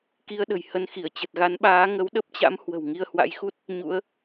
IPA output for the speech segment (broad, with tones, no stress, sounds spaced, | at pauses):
k i˧ ə̯ ɗ ə̤˨˩ j h ə˧ n x i˧˩ ə̯ t͡ɕ ə˨˩ t̚ ɣ a˨˦ n ɓ aː˨˦ ŋ ə˨˦ w ɗ ə˦˥ p̚ t͡ɕ a̰˧˥ m h w ə̤˨˩ w ŋ i˧ ə̯ h w a̰˧˥ j x u˦˥ t̚ | ɲ ṵ˧˥ ə̯